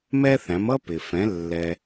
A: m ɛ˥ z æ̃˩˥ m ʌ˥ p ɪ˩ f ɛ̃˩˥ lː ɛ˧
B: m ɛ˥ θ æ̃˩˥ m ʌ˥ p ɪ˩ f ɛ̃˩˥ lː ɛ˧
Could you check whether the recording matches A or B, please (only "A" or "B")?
B